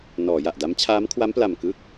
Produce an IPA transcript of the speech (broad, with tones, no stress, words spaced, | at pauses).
nɔː˩˦ ja˨˩ʔda˦˥m t͡ɕʰaː˦˥mkʰwa˦˥mpla˨˩m kɯ˥˩k̚